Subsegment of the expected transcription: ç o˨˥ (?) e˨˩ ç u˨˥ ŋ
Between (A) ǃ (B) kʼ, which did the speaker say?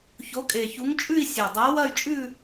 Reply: B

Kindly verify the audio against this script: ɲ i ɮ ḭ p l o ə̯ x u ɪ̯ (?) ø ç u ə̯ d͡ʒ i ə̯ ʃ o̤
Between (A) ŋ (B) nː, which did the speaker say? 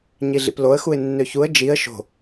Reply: B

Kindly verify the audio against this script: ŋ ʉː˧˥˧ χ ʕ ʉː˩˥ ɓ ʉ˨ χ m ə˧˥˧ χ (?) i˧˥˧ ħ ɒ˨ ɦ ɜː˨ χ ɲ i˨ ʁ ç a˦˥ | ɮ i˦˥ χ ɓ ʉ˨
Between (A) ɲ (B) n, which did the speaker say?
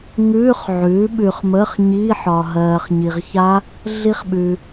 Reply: A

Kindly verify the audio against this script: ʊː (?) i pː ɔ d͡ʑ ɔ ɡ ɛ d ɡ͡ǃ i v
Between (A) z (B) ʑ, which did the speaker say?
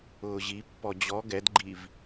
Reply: B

